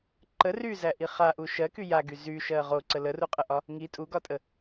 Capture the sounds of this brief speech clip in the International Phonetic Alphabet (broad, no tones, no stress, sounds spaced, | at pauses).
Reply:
ǃ ə r y z æ ʔ i χ a ʔ u ʃ ɜ k y j a ɡ y z y ʃ ɜ ʁ o ǀ ə l ə r u qʼ ə ʔ ɒ | ŋ i tʼ u ɡ ɒ tʼ ə